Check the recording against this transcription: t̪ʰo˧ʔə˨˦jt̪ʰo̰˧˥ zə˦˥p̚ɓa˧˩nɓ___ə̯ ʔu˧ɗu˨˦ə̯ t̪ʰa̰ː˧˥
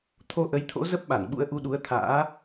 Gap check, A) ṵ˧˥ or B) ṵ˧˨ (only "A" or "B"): A